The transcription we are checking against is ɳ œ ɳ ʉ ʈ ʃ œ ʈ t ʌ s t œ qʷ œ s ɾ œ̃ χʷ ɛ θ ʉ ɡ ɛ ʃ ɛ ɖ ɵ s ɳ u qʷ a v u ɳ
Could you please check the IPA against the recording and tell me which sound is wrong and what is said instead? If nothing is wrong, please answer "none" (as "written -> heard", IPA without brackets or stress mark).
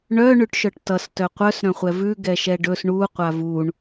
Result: θ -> v